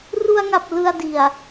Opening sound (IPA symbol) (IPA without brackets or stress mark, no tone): r